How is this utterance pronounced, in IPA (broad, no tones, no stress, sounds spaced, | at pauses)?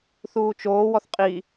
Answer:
θ uː t͡ʃ oː w ɔ θ qʼ i